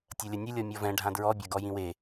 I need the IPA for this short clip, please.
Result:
tʲ ɐ lʲ ɐ nʲ ɘ lʲ ɔ mʲ ɔ v ɛ̃ ɖʱ ã d ɹ ɔ bʲ ɐ ɡ ɔ j ĩ w e

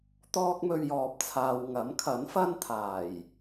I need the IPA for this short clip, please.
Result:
t̪ ɔː˥ k̚ m ɵ˧ ɥ j ɔː˨ p̚ t͡sʰ aː˨ w ŋ ɐ˨˥ m kʰ ɐ˨˥ n f ɐ˥ n t̪ʰ aː˨˩ j

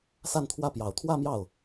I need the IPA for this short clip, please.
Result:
s a˥˧ n t̪ʰ w ä˥˩ p j ɑ˨˩ ʊ̯ t̪ʰ w ä˥˧ m j ɑ˥˩ ʊ̯

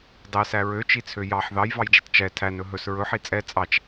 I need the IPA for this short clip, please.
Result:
dˤ ɛ s æ ɹ ø t͡ʃ i t͡sʰ ø j ɑ ħ ð ɑ j v ɑ j d͡ʒ i tˤ t͡ʃ ɛ tʰ æ n ɵ ɦ ɵ s ɹ ɵ ħ i t͡sʼ ɛ t͡sʼ ɑ t͡ʃ

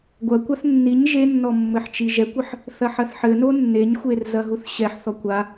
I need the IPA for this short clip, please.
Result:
ɡʷ ɐ kʷ a θ nː i ɲ ʒ e nː ɔ mː ɘ ħ t͡ʃ i ʒ ɛ kʷ ɘ ħ | θ ɐ ħ ɐ θ ħ ɘ n o nː e ɲ xʷ e r z ɐ ɦ u θ ɕ ɛ ħ θ ɔ kʷ a

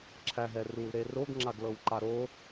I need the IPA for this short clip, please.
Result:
ǁʰ æ ɦ ɛ r u l ɾ e r o ɡ ŋ͡ǁ a ɡ l ɤ w ǃ a ɾ o

